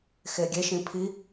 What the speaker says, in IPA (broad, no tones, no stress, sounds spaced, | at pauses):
x e ɡʲ e ʃ ĩ pʰ i